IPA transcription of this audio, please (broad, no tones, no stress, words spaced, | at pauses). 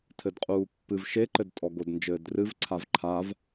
tʰɘdqʼuːpːɨv ʃeǃɘd tʼɔɡodnd͡ʒɘːdrɨv ǀʰavǃʰav